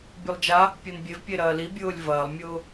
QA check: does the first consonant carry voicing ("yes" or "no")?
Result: yes